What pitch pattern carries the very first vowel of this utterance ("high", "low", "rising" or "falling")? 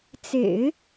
low